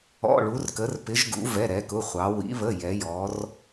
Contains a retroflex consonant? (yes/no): yes